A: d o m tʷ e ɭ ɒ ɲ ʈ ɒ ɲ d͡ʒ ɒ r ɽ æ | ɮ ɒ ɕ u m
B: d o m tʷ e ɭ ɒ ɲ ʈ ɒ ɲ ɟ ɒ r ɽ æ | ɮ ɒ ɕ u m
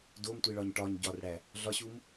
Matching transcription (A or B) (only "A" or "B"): B